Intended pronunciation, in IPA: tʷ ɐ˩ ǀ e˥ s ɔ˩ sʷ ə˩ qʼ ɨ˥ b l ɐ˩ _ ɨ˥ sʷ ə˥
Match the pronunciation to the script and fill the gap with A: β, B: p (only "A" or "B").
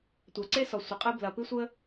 B